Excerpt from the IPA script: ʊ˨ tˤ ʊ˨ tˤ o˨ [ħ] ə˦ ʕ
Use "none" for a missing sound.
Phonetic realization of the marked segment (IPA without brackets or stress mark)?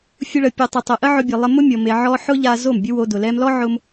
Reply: ʔ